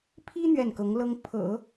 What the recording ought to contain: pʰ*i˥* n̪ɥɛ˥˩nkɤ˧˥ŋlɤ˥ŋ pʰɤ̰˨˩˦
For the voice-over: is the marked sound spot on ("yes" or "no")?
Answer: yes